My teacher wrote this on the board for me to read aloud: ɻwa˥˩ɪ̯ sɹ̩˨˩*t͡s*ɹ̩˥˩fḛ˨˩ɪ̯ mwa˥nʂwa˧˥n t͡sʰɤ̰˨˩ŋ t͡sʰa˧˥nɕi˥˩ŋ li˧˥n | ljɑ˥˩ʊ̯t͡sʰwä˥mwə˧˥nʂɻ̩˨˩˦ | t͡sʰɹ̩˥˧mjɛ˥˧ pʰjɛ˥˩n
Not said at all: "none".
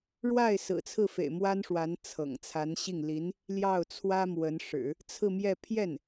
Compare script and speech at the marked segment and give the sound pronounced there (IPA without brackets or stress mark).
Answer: t͡sʰ